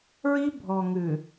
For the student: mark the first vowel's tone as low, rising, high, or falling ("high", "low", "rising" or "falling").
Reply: high